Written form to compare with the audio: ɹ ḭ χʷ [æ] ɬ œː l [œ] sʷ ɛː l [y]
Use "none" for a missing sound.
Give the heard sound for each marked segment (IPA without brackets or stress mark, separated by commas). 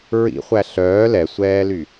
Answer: æ, ɛ, y